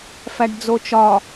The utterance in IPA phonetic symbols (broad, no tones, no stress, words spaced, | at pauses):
fæɖd͡zot͡ʃɒ